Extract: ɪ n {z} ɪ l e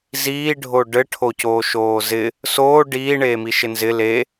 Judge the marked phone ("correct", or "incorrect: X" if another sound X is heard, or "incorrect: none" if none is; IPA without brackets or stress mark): correct